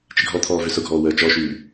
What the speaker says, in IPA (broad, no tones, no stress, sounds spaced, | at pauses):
t͡ʃ ɪ ɡʱ ɔ t̪ʰ ɔː v ʏ s ʊ ɡʱ ɔː w əː t͡ʃ ɔ ʃ yː